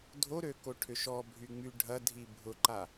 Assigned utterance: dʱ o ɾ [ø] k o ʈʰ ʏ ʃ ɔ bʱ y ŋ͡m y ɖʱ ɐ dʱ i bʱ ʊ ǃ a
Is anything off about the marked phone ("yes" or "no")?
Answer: no